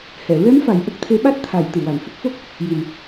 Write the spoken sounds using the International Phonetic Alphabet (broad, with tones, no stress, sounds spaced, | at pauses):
h ɛ˨˩˨ ɹ ɛ˧˥ m f a˨˩ j ʔ ə˦˥ k̚ t̪ʰ e˧˥ ɓ a˦˥ t̚ t̪ʰ a˨˩˨ j t̪ ɨ˨˩˨ w a˨˩˨ ŋ h ə˦˥ k̚ f o˦˥ k̚ | j i˨˩ m